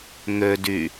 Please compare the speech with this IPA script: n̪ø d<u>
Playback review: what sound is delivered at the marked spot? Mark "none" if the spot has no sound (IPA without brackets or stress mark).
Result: y